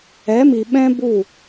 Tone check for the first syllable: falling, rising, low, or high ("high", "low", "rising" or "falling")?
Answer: rising